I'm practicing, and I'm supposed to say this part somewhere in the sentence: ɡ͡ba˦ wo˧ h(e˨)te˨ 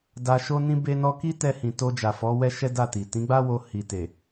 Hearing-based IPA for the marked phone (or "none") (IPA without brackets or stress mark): i˨